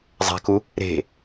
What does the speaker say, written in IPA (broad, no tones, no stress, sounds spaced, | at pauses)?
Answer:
zˤ æ̤ k u | ɾ e̤